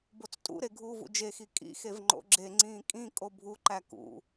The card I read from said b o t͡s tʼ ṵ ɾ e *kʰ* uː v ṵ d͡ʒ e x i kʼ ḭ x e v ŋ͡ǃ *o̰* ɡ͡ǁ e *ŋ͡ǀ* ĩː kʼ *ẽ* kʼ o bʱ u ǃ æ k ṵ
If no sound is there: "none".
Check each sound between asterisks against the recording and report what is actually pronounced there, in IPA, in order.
ɡʱ, o̰, ŋ͡ǀ, ĩ

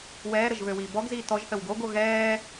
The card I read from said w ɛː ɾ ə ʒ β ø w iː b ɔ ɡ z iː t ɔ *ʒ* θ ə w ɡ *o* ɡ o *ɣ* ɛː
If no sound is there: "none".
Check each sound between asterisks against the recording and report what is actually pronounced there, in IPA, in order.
ʒ, o, ɣ

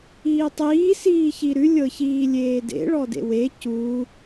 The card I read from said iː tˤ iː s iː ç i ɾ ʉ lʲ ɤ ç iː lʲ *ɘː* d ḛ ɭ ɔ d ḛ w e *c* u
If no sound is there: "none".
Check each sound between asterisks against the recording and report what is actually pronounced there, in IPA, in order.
eː, c

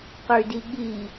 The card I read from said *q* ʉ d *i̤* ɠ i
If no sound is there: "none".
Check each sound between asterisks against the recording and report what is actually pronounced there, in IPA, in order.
q, i

